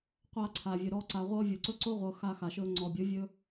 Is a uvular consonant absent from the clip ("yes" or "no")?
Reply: no